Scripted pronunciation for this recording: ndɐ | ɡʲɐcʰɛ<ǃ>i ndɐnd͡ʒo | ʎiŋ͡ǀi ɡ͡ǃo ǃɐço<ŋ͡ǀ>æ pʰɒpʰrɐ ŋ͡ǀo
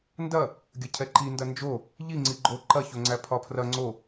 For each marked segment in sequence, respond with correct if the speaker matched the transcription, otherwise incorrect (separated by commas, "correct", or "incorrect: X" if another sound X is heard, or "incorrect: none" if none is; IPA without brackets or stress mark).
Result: correct, correct